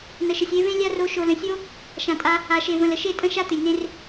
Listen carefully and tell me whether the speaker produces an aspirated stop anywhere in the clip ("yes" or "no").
no